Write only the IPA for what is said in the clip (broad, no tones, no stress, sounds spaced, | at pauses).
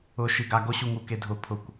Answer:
ʊ ʃ i ɡ a ɡ o ɕ u ŋ u k e dʱ ʊ pʰ ʊ kʷ